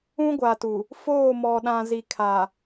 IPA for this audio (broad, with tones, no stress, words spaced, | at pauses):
ũ˦ɡʷa˨tu˨ | foː˦˨mɔ˨ ɗã˨zi˨kʰa˨